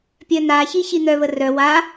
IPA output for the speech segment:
pʲ œ n a ç i ç i n̪ œ β ə r œ w a

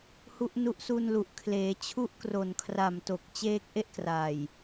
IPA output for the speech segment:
h u˦˥ ʔ n u˦˥ ʔ s u˧ n l u˨˩ ʔ kʰ l eː˩˦ t͡ɕʰ u˦˥ ʔ k r o˨˩ n kʰ r a˨˩ m t o˨˩ k̚ t͡ɕ eː˦˥ k̚ ʔ e˥˩ ʔ k r a˨˩ j

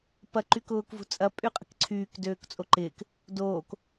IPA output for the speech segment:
p ɐ ǃ y k ʊː k v ṳ t͡sʼ ɐ pʼ y qʼ ə̤ k ǀʰ yː k d øː k t͡sʼ o ǃ ɪː k | d oː k

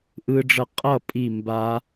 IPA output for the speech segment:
ʔ ɯ˦˥ ɖ͡ʐ ʌ˥˨ qʼ ʌ˥˨ pʼ i˥˨ m b a˦˥

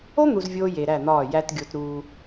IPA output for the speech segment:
o˦ n̪ u˨ z vʲ oː˦ j e˨ ɾ æ˦˨ n̪ ɒː˦˨ j æ˦ t ɡʲ o˦ t ɾ uː˦

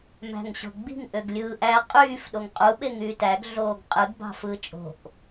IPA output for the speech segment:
m æ̤ ŋ ɕ o̤ ɡ͡b i̤ ŋ ʔ ø ɡ lʲ ɯː ʔ æ qʼ yː f ɗ o ŋ qʼ u ɓ e ŋ yː t æ ɡ ɮ oː ɡ qʼ ɯ ɡ b ɑ̤ f ɯː t͡ʃʼ o̤ ʔ

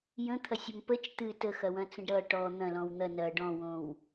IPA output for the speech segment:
j ə̃ t̪ʰ ɐ sʲ ʌ m p ə t͡ʃ t̪ ɨ t ə x ɐ w ɐ̃ t͡s ə̃ ɖ ɾ ʌ ʈ ɔ n̪ ɐ̃ l ɔ̃ w n̪ ɐ n ɐ ɖ ɔ̃ w õ w

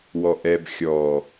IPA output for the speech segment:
w ɔ ʔ ɛ b xʲ ɔ

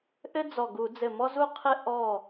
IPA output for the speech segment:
ʔ ɘ˥ d͡z ɔ˧˩ ɡ u˧˩˧ d͡z ɘ˧˩ m ɔ˥ z u˥ qʰ ɘ˥ ʔ ɔ˧˩

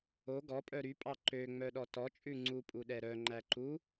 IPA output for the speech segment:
o ɡ ɔ pʼ œ ɾ y pʼ ɑ ǃ ø ŋ͡m œ ɗ ɔ t ɔ t͡ʃʼ ʉ ŋ͡ǀ u pʼ u ɗ ɛ ɾ œ ŋ͡ǃ æ ǃ u

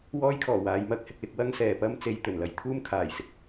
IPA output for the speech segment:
w ɔː˥ j kʰ ɔː˨˩ w aː˨˧ j m ɐ˧ k̚ h ɪ˧ k̚ l ɪ˨˥ k̚ w ɐ˥ ŋ s ɛː˨ p ɐ˥ m t͡s e˧ j t̪ ɵ˨˩ n l ɐ˧ j t̪ʰ uː˥ m kʰ aː˨˩ j s ɪ˥ k̚

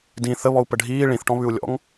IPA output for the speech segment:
d ĩ θ ə β ɔ u̯ p ə ɖʱ iː ɭ ĩ θ ʈ ɔ̃ β ʉ u̯ lʲ ɔ̰ ŋ

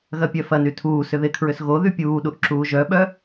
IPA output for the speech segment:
ɣ ɐ pʲ œ f ɐ n y tʰ uː s ʏ ð ɪ kʰ ɹ ʏ s ɣ o ð y pʲ uː ɗ u ʔ ǁ uː ʒ œ ɓ œ

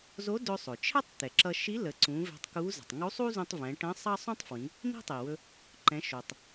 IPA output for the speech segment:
z o˧˥ d ɵ˧ sˤ ɵ˩ t͡ʃʰ ɛ˥ tˤ t̪ ɛ˩ ǁ ʌ˧ ʃ i˧˥ l ə˩˧ ǀ ũ˩˧ v ɛ̤˧ tˤ k u˧˥ z ə̤˩ tˤ ŋ u˧˥ sˤ u˥ z ũ˧ tˤ v ɛ̃˩˧ ʈ ə̃˧˥ sˤ ɑ˥ sˤ ũ˥ tˤ f w ĩ˩˧ | n̪ i̤˥ tˤ i˩ w ɵ˧ | ǃ ɛ̃˩˧ ʃ o˩ tˤ

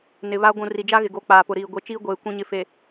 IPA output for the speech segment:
n ɪ˨ β a˦ ɡʷ ũ˨ r i˨ d͡ʒ a˦ ɣ ɪ˨ ɡ o˨˦ k͡p aː˨ p ʊ˨ ɾ iː˨ ɡʷ e˨ t͡ʃ iː˦ ɡʷ eː˨ kʷ ĩ˨ ɲ ɪ˨ f e˨

